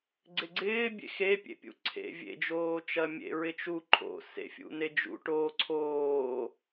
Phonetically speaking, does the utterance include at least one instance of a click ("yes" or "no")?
yes